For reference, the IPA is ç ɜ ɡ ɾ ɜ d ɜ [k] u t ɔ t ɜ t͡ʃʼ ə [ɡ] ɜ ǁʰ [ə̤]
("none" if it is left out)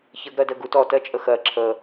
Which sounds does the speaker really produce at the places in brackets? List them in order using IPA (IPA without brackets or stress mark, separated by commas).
ɡ, x, ə